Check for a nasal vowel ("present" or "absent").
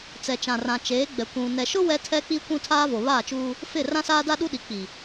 present